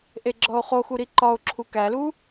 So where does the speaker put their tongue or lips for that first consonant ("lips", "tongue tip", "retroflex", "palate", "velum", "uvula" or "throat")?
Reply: throat